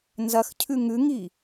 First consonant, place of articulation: alveolar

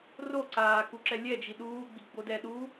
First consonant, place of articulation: alveolar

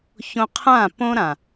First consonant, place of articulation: palatal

